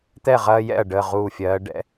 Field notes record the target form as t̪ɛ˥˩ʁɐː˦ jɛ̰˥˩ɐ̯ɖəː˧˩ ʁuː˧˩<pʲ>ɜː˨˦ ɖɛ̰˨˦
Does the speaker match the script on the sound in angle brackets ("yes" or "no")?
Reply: no